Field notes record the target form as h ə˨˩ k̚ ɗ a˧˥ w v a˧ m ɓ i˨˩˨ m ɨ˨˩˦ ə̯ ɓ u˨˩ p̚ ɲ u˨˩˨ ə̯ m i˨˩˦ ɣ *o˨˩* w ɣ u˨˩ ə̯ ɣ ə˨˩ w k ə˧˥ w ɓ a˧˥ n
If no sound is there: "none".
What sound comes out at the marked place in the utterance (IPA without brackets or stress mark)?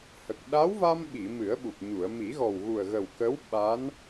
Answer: ɔ˨˩